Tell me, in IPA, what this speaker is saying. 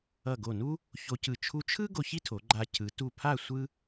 ʌ˧˩ ɡ o˧˩ n u˥ | ç o˧ c ɯ˧˩ t͡ʃʰ u˧ t͡ʃʰ ɯ˥ ɡ o˧ ç i˥ tʰ o˩˧ ɡ͡ǃ a˧ cʰ ɯ˩˧ t u˧˩ pʰ a˥˧ sʷ ɯ˥

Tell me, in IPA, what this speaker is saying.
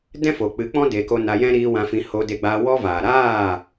d ɛ̃˦ f o˨ k͡p ɨ˨˦ k͡p ɔ̃˦ d e˧ k o˦ n a˧ j ɛ̃˦ ɾ iː˧ w ã˧ f ĩ˧ h oː˧ d e˧ ɡ͡b aː˧ w ɔ˦ v aː˨ ɾ aː˦˨

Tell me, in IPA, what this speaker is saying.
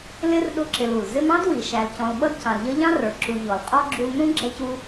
l ɪ˥ r ɗ ʊ˦ ǁ ɪ˨ l u˩ l z ɪ˦ m ɑ̃˥ d w i˩ ʃ æ˨ l c ɔ̃˨ l ɓ ʌ˥ d c ɑ̃˨ l ʎ ʌ˥ ʎ ɑ̃˥ r ə˞˩ ǁ u˨ ʎ ɔ˩ l qʼ ɔ˥ ɡ͡ǁ u˦ l n ũ˥ ɡ͡ǁ ɛ˦ c u˦

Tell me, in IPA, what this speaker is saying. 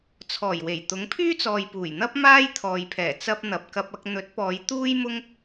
t͡sʰ ɔː˨˩ j w e˨˩ j t̪ ʊ˨˥ ŋ pʰ yː˥ t͡s ɔː˨ j p uː˨˩ j n̪ ɐ˥ p̚ m aː˥ j t̪ʰ ɔː˨ j pʰ ɛː˨˩ t͡s ɐ˥ p̚ n̪ ɐ˨ p̚ k ɐ˨ p̚ ɐ˨ k̚ n̪ ɵ˨˥ t̚ p ɔː˨˧ j t̪ uː˥ j m ʊ˥ ŋ

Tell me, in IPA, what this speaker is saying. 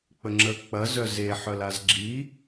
k͡p ə ŋ͡ǁ ə k͡p ɐ z œ z e ħ œ l a z ɡ͡ǁ i

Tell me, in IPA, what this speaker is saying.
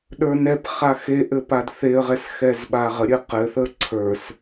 ɗ ə˞ n ɛ p χ a x e ʔ ɘ p a d θ e ə̯ ʁ ɛ s x ɛ z ɓ a ʁ ə ɾʲ ɘ q ɘ θ ə ǀʰ ə˞ s

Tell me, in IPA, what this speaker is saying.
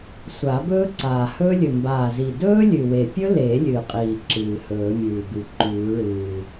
sʷ a˨˩˦ b ɵː˦˥ ǀ aː˨˩ h ɵː˦˥ lʲ ɵ˨˩ m b aː˨˩ z i˨˩ d ɵː˦˥ lʲ ɨ˨˩ w e˨˩ pʲ ɵ˦˥ l e˨˩˦ lʲ ɨ˨˩ qʼ iː˨˩ ǁ ɨː˨˩ h ɵː˨˩˦ mʲ ʉː˨˩ b ɨ˨˩ ǃ ʉː˨˩˦ ɭ ɨː˨˩

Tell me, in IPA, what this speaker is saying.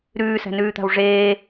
ɾ ʉː s æ̤ n ʉː t̪ a̤ w ʐ eː

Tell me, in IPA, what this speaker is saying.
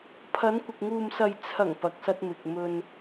pʰ ɐ˨˧ n kʷ ɪ˨ k̚ ŋ uː˨ m s ɐ˨ j t͡sʰ ɐ˨˩ ŋ p ɐ˨ k̚ s ɐ˧ t̚ m ɪ˨ k̚ m ɵ˧ n

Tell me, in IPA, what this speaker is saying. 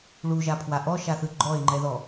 ɭ u ʒ a pʰ w a ʔ ɔ ʃ a θ ɯ ɡ͡ǃ ɔ e̯ ŋ͡ǃ ɛ ð ɔ

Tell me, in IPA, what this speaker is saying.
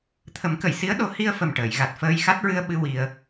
t̪ʰ ə˨˩˦ m k ə˨˩˨ j s i˧˥ ə̯ ɗ o˨˩˦ h i˧ ə̯ f ə˨˩ m ʈ əː˨˩˨ j ɣ a˨˩ t̚ f əː˧ j x a˦˥ t̚ ɹ ɨ˧ ə̯ ɓ ɨ˧ w i˧ ə̯

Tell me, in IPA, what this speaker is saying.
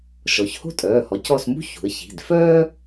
ʃ ɔ˩˧ ç h o̤˥ tʼ œː˩˧˩ h ɔ˩˥ c ɔ˦˨ s m ṳ˥ ç ṳ˩˧ ə̯ ç i̤˩˧˩ d f œː˥

